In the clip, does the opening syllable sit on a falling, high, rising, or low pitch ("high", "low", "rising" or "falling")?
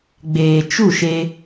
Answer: low